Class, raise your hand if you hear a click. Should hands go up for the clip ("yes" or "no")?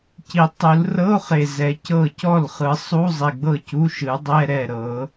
no